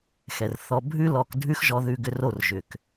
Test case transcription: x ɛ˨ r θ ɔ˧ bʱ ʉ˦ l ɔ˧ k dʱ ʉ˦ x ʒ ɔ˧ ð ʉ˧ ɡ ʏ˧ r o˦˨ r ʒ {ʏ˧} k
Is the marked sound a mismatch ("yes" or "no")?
yes